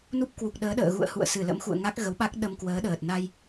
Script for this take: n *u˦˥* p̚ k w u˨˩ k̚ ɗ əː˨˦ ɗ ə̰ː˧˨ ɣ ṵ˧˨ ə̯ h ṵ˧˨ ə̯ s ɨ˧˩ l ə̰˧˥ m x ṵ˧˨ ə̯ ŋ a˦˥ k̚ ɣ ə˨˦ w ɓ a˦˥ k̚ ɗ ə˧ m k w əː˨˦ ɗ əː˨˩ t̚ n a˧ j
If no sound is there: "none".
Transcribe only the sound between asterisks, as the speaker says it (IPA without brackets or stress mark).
u˦˥